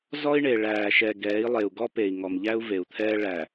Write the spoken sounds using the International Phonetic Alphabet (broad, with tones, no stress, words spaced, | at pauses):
zɔ˦i̯ɳe˨ ɭæː˨ ʃɛ˨ ɡɛː˨˦i̯lˠe˨u̯ɡɔ˦ pe˨i̯ ŋɔ˨mʎæ˦u̯ ve˨u̯t̪ʰɛː˦ ɭæ˨